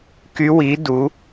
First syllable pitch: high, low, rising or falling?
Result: rising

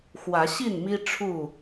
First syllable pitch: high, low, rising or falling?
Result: rising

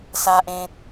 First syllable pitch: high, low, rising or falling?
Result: low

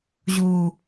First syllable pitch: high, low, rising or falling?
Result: low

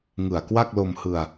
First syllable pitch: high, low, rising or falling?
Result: low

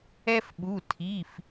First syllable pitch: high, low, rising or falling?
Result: high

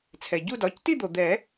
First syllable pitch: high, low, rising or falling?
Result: low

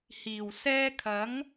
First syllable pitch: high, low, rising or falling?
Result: low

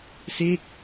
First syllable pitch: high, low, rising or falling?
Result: falling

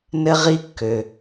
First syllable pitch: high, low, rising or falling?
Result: high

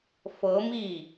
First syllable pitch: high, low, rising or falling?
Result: rising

